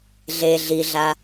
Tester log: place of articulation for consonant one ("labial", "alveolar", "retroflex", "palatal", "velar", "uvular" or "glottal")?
alveolar